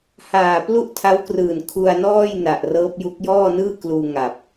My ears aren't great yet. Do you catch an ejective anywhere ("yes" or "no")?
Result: no